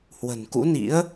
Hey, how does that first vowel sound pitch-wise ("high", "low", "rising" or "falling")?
low